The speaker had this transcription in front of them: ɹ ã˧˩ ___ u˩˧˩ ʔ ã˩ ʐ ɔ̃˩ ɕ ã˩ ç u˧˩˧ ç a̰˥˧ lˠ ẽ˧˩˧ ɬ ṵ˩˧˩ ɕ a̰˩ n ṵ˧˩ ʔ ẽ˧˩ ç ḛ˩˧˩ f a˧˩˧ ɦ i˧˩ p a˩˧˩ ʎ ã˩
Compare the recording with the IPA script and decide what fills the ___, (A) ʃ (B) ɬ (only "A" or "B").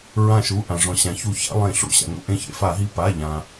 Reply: A